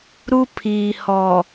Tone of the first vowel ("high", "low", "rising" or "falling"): high